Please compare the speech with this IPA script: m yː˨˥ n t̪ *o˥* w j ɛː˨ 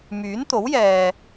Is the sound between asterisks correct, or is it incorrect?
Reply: incorrect